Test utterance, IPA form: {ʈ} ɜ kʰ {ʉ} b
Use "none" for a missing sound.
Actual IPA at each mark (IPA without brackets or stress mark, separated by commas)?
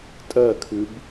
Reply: tʼ, ʉ